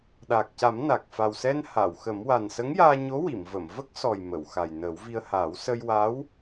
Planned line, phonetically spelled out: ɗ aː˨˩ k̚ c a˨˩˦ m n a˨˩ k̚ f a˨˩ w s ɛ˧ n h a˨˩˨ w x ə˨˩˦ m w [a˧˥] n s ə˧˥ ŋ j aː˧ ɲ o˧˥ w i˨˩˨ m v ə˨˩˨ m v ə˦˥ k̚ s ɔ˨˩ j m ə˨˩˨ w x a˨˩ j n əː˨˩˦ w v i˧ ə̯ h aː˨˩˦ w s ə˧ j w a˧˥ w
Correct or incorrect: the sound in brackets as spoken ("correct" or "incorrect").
incorrect